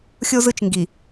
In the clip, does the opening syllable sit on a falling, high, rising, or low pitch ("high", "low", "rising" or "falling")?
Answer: high